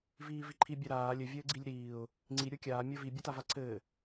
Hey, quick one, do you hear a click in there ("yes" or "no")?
yes